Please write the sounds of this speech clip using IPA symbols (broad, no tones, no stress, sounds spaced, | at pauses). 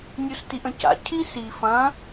nʲ u s t i ʔ ə̃ c a̰ cʰ i s i f ɐ̃